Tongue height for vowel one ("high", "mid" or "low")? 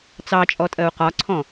low